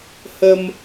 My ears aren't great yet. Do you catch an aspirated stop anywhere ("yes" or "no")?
no